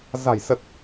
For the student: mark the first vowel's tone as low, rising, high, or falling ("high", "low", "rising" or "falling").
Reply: low